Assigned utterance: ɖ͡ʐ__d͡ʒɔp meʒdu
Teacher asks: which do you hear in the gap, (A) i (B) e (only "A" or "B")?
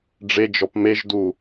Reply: B